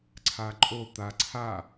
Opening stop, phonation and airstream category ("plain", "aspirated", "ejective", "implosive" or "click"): click